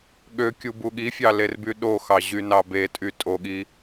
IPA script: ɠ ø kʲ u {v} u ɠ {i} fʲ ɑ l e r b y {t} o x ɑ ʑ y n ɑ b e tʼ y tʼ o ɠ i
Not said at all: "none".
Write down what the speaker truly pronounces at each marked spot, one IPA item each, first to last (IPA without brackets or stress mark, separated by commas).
b, i, ɗ